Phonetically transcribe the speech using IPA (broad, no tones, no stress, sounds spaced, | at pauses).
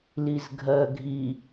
l i z ɡʱ ɜ ɡʱ i